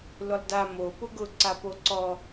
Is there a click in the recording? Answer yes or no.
yes